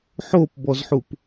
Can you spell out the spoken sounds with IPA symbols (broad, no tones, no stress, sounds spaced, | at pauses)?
ħ o p b ɔ z ħ u p